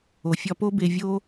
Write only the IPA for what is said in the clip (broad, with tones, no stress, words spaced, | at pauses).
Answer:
o˨fʲɒ˧po˦be˧ vʲo˦